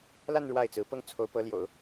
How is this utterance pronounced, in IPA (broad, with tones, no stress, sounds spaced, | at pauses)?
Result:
l a˥˧ n ɻ w a˥˩ ɪ̯ t͡s ɹ̩˧˥ p ɤ˥˩ ŋ t͡sʰ o˧˥ ʊ̯ p ɤ˧˥ l j o̰˨˩˦ ʊ̯